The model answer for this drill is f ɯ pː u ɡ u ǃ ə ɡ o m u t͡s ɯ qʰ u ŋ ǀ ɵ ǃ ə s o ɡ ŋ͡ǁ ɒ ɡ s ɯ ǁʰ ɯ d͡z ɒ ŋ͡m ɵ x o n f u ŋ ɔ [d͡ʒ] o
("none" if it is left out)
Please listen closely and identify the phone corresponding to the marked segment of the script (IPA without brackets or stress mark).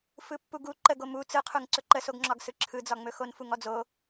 d͡z